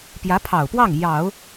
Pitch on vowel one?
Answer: rising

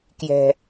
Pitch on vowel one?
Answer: low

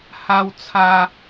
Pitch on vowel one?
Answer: high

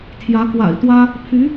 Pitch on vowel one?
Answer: rising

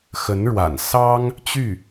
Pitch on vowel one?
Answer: rising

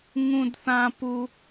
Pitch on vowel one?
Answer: high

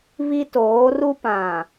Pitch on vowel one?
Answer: high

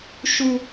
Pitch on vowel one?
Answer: low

